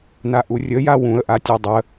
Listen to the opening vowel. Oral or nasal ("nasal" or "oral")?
oral